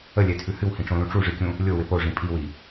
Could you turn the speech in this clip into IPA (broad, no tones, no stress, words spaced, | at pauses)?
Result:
əlʲɛtʰʉ hɨwhĩʈ͡ʂõlũ ʈ͡ʂuʐɨkʲũ | lʲowɪ poʐĩ pʼiwi